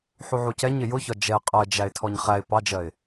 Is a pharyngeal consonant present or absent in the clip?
present